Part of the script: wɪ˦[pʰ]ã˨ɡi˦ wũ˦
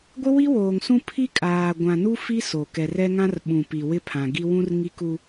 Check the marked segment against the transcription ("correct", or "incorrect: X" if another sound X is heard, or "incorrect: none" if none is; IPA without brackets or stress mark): correct